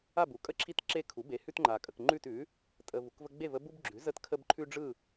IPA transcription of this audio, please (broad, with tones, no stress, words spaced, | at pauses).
a˥˨bu˩˥kʼə˦ ǁʰi˥˨tǁe˦kʰu˩˥ be˩˥hʉ˦tŋ͡ǃa˨ kʼə˨kŋ͡ǃʉ˥˨tʉ˩˥ | tʼə˨ vu˨kvə˦ ɡ͡be˥˨və˦ bu˦bɡ͡ǁʉ˩˥ zə˥˨tkʰə˦b ǃʰʉ˦ɖ͡ʐɯ˥˨